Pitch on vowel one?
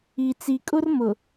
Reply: low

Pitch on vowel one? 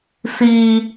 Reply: low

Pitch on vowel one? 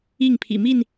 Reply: falling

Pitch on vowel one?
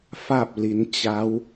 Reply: falling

